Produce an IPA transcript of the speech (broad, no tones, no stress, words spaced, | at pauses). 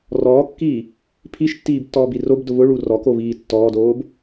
rɔːkːiː | pʰiʃtːiːbtːɔːbi robdʊ βʊɭu rɔkoβiː tːɔːdoːb